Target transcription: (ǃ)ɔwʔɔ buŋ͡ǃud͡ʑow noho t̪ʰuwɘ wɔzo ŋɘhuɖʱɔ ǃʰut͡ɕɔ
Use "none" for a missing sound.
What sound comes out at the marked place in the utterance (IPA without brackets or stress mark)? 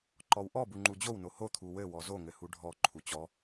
ǃ